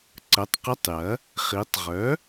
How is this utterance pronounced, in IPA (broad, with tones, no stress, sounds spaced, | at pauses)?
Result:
ǀ ə˩˥ tˤ q ə˧˥˧ tˤ j ɐ˩˥ | χ i˩˧ tˤ ʁ œ˩˥